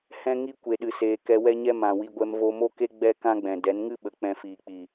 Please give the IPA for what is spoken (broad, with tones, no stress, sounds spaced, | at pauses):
h ɛ̃˦ ŋ i˦ kʷ e˨ ɗ ɨ˨ s eː˨ k ɛ˧ w ɛ˦ ɲ ɛ˦ m ã˨ w i˧ ɡʷ ɛ˧ m v o˧ m o˦ k e˦ ɡ͡b ɛ˦ k ã˦ ɡ͡b ɛ̃˨ d ɛ˨˦ n ŋ ɨ˦ ɓ ə˨ k͡p ɛ̃˧ f iː˨ k͡p i˨